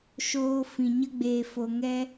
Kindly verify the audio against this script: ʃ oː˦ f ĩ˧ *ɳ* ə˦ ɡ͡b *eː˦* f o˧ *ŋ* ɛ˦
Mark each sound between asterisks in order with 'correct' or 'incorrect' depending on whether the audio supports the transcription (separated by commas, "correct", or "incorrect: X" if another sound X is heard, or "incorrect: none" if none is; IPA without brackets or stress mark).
incorrect: ɲ, incorrect: eː˧, correct